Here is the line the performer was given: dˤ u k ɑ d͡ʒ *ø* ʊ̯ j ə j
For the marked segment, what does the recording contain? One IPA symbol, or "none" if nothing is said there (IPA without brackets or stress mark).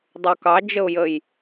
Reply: ə